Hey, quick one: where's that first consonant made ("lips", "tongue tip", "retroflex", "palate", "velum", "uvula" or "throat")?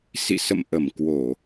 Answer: tongue tip